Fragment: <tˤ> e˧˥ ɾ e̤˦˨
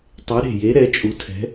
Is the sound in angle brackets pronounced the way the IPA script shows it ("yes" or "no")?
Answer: yes